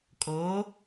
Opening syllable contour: rising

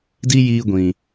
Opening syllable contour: high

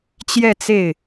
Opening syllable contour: falling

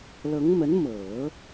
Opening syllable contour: rising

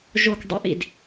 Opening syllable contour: low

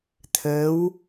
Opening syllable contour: rising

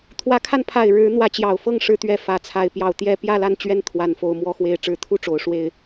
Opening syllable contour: rising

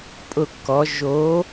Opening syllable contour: falling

